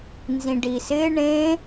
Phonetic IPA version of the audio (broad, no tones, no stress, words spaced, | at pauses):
nzĩɖisɪ ɳẽ